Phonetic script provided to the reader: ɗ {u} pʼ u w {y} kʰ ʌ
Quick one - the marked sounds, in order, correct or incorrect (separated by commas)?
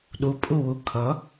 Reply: correct, incorrect